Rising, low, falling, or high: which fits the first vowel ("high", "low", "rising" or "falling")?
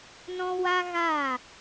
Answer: high